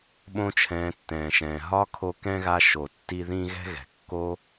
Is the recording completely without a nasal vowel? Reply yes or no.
no